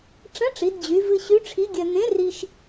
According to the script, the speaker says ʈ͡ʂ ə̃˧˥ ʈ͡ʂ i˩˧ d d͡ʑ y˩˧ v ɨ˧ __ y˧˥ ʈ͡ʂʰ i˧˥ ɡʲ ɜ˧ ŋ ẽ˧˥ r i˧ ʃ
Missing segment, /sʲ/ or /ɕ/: ɕ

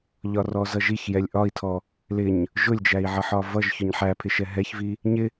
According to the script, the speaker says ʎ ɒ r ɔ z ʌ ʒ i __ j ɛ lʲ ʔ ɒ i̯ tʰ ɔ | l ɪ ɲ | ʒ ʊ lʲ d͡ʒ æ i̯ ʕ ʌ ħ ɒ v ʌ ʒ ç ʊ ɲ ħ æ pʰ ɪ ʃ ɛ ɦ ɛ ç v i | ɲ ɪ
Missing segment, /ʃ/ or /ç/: ç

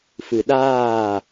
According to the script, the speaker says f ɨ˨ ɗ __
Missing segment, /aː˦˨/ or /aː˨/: aː˦˨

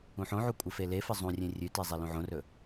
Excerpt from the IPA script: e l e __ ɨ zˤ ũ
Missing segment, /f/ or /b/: f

